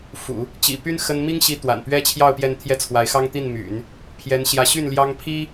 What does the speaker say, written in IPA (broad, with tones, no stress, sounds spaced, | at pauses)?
f ṵ˨˩˦ | t͡ɕ ḭ˨˩ p y˥ n x ə˥ n m i˥ ŋ ɕ i˧˥ t̪ w a̰˨˩ n p ɥ ɛ˥ t͡ɕʰ j ɑ˥˧ ʊ̯ p j ɛ˥˧ n t̪ʰ j ɛ˥˩ t͡sʰ w a˧˥ ɪ̯ x ɑ˥ ŋ t̪ i˥˩ n m y̰˨˩˦ n | pʰ j ɛ˧˥ n ɕ j ä˧˥ ɕ y˥˩ n l j ɑ˥ ŋ pʰ i˥